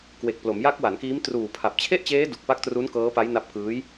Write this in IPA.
kwe˨˩k̚ plo˩˦mja˦˥k̚wa˩˦nkiː˦˥m truː˨˩pʰa˨˩p̚t͡ɕʰe˥˩ʔt͡ɕeː˦˥ du˨˩k̚pa˦˥k̚tru˦˥n kɤː˦˥pa˦˥jna˦˥p̚ kɯː˦˥j

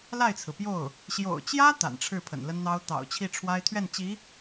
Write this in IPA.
la˥˩ɪ̯t͡sʰɹ̩˩pjo˥˩ʊ̯ | ɕjo̰˨˩ʊ̯t͡ɕjä˥ t̪a̰˨˩nʈ͡ʂʰɻ̩˥˩ pʰə̰˨˩nlə˥nn̪ɑ˥ʊ̯ t̪ɑ̰˨˩ʊ̯t͡ɕʰi˥˩ʈ͡ʂʰwa˥ɪ̯ t̪ʰɥɛ˥˩nt͡ɕi˧˥

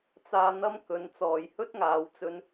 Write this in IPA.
t͡saː˧n̪ɐ˥m kɵ˨˧nt͡sɔː˨j hɵ˥t̚ŋaː˨˧wt͡sɵ˧n

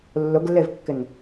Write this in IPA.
lːʊɡlːevkːɪn

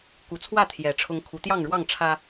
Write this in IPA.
ku˨˩t͡sʰwä˥˨ t̪ʰjɛ˨˩ ʈ͡ʂʰʊ˨˦ŋ kʰu˨˦t̪jɑ˥˨ŋɻwɑ˥˨ŋ ʈ͡ʂʰä˦

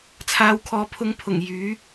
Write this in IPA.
t͡sʰaː˨˧wkʰɔː˨pʰʊ˧ŋpʰʊ˨˩ŋ jyː˨˥

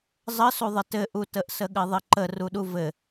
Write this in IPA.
zˤəsuðˤə tɘʔutəʔ səɠɘðˤɘǃə ruɗuvɘ

